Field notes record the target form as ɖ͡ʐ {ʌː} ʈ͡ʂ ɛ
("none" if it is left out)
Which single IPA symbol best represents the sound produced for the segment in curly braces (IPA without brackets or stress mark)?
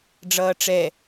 ʌː